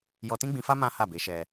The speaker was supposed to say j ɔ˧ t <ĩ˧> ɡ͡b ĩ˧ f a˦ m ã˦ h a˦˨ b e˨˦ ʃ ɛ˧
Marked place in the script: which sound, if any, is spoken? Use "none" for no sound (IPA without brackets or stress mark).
ĩ˦